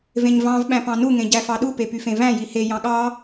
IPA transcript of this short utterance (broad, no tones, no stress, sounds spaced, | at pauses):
v ẽ ɲ v ɑ̃ v ɓ æ̃ p ɑ̃ n u ŋ ẽ ɟ æ f ɑ ɗ u p e p y f ẽ v æ̃ j i h e j ɑ̃ ɠ ɑ